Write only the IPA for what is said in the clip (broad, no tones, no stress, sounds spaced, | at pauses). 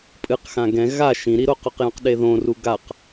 pʼ ɨ q x ã ɡ ɛ̃ ɣ a ʃ ĩ ɾ i ɾ o q o q j õ q ɗ e ð õ r u ɡ a q